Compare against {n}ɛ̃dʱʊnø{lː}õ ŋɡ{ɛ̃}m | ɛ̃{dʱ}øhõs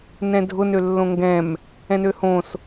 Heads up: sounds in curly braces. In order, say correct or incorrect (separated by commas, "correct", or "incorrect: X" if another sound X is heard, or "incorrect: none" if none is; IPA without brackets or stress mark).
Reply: correct, correct, correct, incorrect: n